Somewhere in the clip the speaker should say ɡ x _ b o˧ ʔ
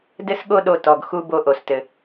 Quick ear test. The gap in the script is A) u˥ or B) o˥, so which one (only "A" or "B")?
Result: A